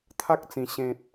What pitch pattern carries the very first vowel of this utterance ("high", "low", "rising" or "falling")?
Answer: high